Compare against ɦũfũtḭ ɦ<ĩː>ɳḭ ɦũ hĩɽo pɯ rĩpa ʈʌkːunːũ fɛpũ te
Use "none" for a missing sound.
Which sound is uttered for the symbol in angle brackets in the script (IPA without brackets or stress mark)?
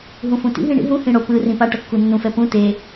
ĩ